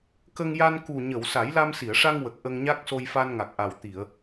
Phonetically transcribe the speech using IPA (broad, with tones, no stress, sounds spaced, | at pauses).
k ə˧ ŋ j a˧ n k u˨˩ ɲ ə˨˩˨ w s a˨˩˦ j l a˧ m s i˨˩˨ ə̯ ʂ a˧ ŋ w ə˨˩ k̚ ʔ ə˧ ŋ ɲ a˦˥ k̚ s o˧ j f a˧ n ŋ a˨˩ k̚ ʔ a˨˩ w t̪ i˨˩˨ ə̯